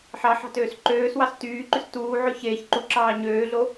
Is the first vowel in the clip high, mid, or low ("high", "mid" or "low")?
low